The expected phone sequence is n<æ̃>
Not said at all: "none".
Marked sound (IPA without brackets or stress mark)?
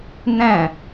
æ̃